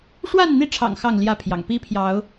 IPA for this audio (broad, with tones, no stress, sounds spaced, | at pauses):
ʂ w a˥˨ n n̪ i˥˨ ʈ͡ʂʰ ɑ̰˨˩ ŋ x ɑ˥˨ ŋ l j ä˥˨ pʰ j ɑ̰˨˩ ŋ p i˦ pʰ j ɑ˨˦ ʊ̯